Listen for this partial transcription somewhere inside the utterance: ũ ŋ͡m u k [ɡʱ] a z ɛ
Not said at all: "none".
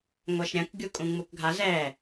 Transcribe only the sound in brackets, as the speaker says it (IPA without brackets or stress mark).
ɡʱ